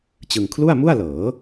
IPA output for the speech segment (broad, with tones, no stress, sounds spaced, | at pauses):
t͡ɕ ɯ˧ ŋ kʰ l u˥˩ a̯ m u˥˩ a̯ l ɤː˩˦